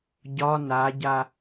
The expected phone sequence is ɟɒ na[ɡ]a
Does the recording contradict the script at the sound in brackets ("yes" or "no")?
yes